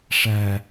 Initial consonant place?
retroflex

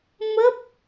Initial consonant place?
labial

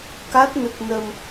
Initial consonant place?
velar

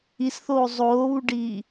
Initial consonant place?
alveolar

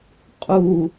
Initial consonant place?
uvular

